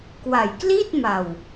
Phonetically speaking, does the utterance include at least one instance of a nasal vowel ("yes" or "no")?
no